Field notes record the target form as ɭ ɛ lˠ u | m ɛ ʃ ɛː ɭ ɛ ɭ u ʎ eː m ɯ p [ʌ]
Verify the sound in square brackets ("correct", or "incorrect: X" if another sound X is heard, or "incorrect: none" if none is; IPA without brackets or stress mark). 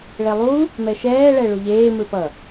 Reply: correct